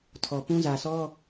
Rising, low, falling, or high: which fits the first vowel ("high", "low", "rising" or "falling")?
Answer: low